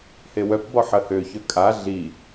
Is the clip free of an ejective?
no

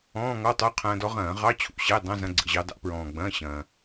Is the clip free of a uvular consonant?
no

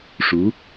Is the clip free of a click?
yes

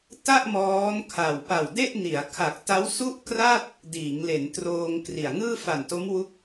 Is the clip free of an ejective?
yes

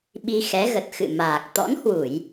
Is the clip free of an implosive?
no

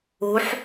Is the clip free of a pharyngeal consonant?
no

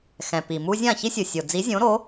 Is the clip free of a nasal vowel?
no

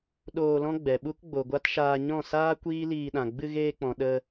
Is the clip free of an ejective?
yes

